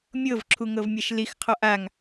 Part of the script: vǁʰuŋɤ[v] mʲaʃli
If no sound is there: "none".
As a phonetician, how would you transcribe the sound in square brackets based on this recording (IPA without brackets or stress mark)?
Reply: v